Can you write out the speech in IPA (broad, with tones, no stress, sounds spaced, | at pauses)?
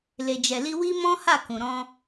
l e˨ d͡ʒ ɛ˨ l i˧ w i˦ m ɔ̃˦ h a˦˨ k ũ˨ ɾ ɔ̃˧